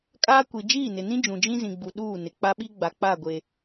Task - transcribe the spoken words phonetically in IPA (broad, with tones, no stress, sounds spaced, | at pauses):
kʼ aː˦ kʷ i˨ d͡ʒ iː˦˨ n ɪ˨ n ĩ˦ d͡ʒ ũ˨ d͡ʒ ĩ˦ z ĩ˨ ɡ͡b u˨ ɗ uː˦˨ n ɪ˨ k͡p a˦ ɓ i˦ ɡ͡b a˨ k͡p a˦˨ ɡʷ e˨